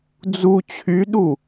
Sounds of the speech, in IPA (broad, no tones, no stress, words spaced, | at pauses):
d͡zu t͡ɕʰyɗu